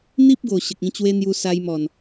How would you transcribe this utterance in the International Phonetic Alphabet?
n̪ i˦ p̚ ɡ o˨˩ ɕ ə˨ k̚ ĩ˧ t͡ɕ w e˦ n̪ j u˧ s a˧ j m ɔ˨˩ n

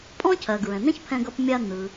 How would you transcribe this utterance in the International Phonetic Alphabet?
pʼ ɔ̃˥ cʰ ɜ˩ ɡ ɹ ɛ̃˩ n̪ ɛ̃˥ ç pʰ ɛ̃˧ ɡ ʌ˧ p mʲ a˧ n̪ ɯ˩

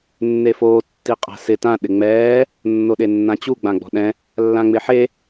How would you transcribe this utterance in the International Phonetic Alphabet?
nː e f oː tː i qʼ a̤ s ɪ t ã ɗ ɪ ŋ͡m ɛː | nː o ɗ e nː ã t͡ɕ u ɡ͡b ã ɡ͡b ɔ̤ ɗ ɛ̃ | lː ã ŋ͡m ɪ ħ e

